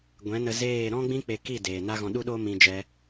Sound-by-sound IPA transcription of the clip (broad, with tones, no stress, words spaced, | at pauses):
ɡʷɛ̃˨˦nə˧zeː˦˨ ɾɔ̃˦ɡ͡bĩ˦k͡pe˧ki˦˨ deː˨na˦ ɣɔ̃˧ɗu˦ɗoː˦ mĩ˧d͡ʒɛ˧